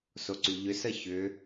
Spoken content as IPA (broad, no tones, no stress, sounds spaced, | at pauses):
s o ǀ y ʎ ʏ s ə ç ʏ